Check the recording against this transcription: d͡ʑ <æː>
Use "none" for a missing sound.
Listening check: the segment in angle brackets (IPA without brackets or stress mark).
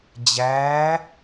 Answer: æː